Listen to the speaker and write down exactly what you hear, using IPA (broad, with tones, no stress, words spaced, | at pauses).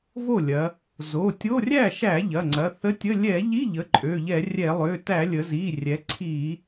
vo˥˩lʲɐ˩˧ | zo˩˧˩tʲo˧˥˧ rʲæ˥˩ʃæ˧˩˧ ʎɐ˩˧˩ŋ͡ǀɐ˩˧˩θə˧˥˧tʲə˧˥˧ lʲɛ˧˩˧ʎi˧˥˧ ʎə˩˧˩ǃʼø˩˧˩ʎɛ˧˩˧rʲɛ˧˩˧ lˠø˩˧˩tæ˧˩˧ lʲə˩˧zi˩˧˩rʲɛ˩˧ ǀʰi˧˩˧